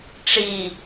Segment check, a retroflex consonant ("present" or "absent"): present